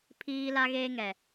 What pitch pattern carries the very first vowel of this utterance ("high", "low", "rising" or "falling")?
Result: high